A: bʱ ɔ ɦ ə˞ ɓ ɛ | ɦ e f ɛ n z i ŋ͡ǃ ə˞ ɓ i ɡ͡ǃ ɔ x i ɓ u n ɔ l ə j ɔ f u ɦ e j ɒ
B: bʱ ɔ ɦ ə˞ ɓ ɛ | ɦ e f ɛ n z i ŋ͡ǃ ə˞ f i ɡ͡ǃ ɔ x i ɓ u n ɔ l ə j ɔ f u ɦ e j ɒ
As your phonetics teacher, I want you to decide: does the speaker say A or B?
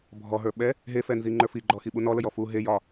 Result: B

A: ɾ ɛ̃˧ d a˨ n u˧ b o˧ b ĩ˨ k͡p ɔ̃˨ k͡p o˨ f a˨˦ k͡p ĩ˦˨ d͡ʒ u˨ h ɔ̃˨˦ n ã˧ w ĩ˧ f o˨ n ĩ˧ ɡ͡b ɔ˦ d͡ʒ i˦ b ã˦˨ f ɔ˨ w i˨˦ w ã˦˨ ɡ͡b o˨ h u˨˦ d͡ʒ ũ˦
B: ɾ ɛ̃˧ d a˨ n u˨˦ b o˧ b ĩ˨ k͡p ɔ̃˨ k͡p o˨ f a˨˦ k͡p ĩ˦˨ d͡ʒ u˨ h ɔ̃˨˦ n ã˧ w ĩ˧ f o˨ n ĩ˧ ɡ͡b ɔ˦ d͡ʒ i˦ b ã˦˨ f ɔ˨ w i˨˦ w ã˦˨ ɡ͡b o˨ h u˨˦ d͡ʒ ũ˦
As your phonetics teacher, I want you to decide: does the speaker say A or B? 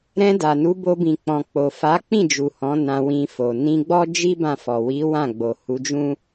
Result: B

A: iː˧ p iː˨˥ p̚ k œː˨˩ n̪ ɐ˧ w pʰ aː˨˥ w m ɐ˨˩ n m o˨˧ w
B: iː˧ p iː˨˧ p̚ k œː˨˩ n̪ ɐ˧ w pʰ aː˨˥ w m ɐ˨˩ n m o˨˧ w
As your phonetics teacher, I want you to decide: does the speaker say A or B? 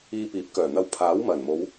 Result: A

